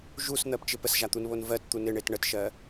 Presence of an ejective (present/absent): absent